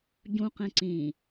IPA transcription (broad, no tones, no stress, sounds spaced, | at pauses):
ɟ ũ q ẽ ǀ ĩ